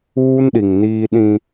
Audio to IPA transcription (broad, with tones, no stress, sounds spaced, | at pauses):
uː˦ n ɗ i˨ ŋ n iː˦ ɗ ĩ˦